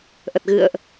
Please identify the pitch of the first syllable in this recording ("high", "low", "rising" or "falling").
low